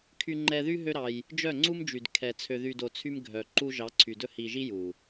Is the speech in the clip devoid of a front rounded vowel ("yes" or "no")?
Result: no